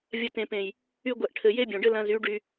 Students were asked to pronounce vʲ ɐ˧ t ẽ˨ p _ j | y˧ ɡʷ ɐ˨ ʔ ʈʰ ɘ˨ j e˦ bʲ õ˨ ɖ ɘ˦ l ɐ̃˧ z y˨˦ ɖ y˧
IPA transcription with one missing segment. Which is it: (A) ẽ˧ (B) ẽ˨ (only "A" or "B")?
B